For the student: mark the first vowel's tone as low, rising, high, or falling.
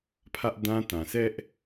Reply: high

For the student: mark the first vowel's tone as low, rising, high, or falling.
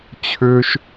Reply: low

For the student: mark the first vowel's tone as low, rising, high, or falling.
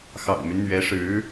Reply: low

